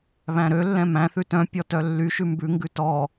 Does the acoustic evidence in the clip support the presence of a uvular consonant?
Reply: no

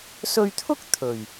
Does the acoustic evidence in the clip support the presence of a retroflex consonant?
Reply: no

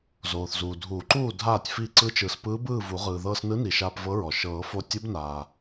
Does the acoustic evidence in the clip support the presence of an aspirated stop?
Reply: no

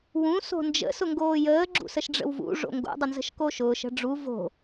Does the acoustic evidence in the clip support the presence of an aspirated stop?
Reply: no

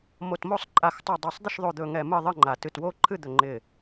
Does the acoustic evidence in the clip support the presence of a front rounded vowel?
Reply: no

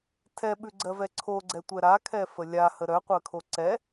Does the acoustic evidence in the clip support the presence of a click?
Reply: yes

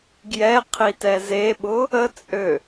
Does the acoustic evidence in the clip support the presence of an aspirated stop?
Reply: yes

